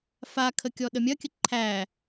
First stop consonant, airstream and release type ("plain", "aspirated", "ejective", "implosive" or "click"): aspirated